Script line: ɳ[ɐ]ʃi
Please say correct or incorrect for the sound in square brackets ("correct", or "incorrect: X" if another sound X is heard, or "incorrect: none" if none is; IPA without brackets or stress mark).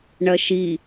correct